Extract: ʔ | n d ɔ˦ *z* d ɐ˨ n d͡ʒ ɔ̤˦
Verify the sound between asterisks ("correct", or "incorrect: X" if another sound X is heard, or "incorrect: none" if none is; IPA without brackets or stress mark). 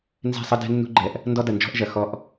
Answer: incorrect: none